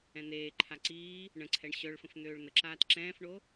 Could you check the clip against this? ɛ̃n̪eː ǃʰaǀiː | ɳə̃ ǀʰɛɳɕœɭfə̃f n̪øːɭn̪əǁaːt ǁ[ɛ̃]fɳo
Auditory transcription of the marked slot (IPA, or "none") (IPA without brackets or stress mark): ɛ̃ː